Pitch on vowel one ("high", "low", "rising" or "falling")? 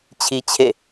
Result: high